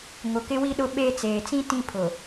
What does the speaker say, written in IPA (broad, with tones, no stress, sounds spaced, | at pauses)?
ŋ ʊ˨ k ɪ˦ w i˦ ɗ ʊ˦ ɓ e˦ t͡s eː˨ t͡s ĩ˦ t ĩ˦ pʰ ʊ˨